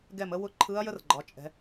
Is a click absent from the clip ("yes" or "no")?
no